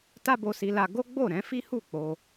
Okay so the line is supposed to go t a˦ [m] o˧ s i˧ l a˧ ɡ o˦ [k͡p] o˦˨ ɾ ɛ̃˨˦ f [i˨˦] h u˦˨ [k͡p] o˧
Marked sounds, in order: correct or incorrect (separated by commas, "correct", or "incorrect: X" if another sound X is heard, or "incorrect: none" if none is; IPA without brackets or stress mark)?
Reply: incorrect: b, incorrect: ɡ͡b, incorrect: i˦, correct